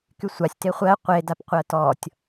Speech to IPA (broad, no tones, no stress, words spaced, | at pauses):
kysʷasʲ teχʷɜ qʷe dapqʷɜtɔtʲ